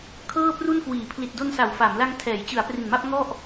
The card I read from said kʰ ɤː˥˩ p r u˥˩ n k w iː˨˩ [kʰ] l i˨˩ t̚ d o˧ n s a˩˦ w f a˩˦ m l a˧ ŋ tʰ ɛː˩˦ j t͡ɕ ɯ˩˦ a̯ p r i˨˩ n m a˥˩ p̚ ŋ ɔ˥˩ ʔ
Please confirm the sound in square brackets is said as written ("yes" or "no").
no